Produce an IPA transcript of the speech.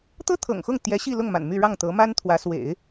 t̪ ɤ˥ t̪ʰ ɤ̰˨˩ ŋ x ʊ˥˩ ŋ t̪ j ɛ˧˥ ɕ i˥˧ l ʊ˥˩ ŋ m a̰˨˩ n m y˥˧ ɻ ɑ˥˩ ŋ t̪ ɤ˧˥ m a˥ n t̪ʰ w ä˧˥ s w ḛ˨˩˦ ɪ̯

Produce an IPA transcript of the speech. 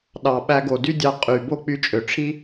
ɗ ɑ˩ ɓ æ˧ ɡ o˩ d y˥ dʲ ɑ˧ qʼ y˩ b o˥ k͡p y˧ t͡ʃʼ ø˩ ʈ͡ʂʰ i˥

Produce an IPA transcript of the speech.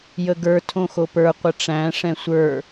j ə ɡ ə˞ tʰ õ x o p ə˞ qʷ ə ʈ͡ʂ æ̃ ʂ ɛ̃ sʷ ə˞

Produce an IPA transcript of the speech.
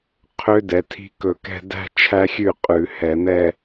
qʰ ø˦˥ d ɛ˩˧ tʰ i̤˦˥ k ɵ˧˩ k ɛ̤˥˧ d æ̤˥˧ t͡ʃʰ æ˦˥ xʲ ʉ˥˩ qʼ ʉ˧˩˧ h ɛ˧˩˧ n̪ ɛ˥˧

